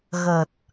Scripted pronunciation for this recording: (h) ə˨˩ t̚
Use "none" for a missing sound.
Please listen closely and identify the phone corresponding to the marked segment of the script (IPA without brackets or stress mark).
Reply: ɣ